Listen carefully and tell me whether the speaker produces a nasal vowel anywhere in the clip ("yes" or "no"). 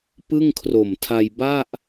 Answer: no